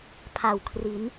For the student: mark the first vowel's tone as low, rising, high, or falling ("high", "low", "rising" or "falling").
low